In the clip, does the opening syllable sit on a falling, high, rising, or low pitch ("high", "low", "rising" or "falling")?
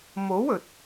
rising